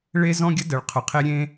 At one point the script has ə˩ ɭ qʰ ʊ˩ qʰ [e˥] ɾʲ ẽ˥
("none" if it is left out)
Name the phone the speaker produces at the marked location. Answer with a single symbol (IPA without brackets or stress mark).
e˥